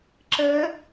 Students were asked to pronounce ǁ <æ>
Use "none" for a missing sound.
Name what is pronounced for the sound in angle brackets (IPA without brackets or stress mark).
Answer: ɛ